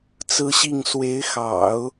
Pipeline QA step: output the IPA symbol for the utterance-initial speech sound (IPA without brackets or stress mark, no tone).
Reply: t͡s